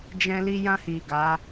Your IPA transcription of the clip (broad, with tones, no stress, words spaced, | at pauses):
d͡ʒɛ̃˧ li˧jã˧hi˨ ɡa˨˦